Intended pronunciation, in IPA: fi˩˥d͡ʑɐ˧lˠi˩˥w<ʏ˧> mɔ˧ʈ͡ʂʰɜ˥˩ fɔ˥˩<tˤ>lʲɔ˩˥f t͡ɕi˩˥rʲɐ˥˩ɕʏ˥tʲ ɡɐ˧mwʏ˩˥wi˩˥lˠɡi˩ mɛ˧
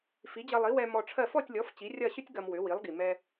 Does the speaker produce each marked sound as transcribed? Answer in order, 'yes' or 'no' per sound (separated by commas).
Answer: no, no